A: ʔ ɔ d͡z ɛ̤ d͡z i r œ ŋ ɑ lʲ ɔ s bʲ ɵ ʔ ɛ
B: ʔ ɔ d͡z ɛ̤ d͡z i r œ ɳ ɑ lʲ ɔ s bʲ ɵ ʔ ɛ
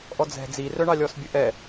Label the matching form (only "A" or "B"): B